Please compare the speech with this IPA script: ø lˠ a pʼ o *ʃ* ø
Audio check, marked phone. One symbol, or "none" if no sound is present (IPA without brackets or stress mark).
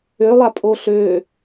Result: ɬ